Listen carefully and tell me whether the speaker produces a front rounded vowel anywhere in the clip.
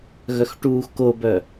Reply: yes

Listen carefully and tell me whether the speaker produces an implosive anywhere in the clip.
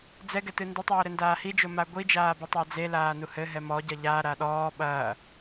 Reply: yes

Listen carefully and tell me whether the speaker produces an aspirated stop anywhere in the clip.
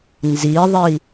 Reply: no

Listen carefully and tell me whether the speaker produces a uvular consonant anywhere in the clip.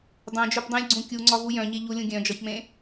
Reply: no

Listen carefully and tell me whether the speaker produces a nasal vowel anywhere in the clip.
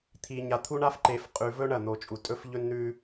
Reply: no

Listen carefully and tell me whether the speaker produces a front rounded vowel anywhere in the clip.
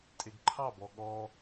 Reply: no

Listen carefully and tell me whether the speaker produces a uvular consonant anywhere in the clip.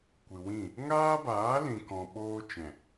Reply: no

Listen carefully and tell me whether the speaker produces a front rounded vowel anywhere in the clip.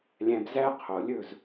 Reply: no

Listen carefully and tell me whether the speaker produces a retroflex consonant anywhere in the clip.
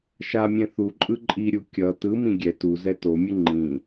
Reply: no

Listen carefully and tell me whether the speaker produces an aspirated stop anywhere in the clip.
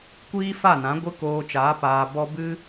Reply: no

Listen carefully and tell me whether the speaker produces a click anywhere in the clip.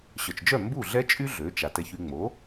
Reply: no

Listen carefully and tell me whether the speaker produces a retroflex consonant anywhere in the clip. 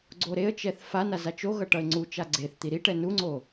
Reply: yes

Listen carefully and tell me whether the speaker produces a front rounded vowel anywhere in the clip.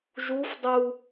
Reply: no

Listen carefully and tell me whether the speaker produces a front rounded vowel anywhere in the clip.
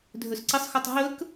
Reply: yes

